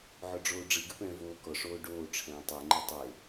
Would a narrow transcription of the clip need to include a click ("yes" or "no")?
yes